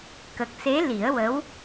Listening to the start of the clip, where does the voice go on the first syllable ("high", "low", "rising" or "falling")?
low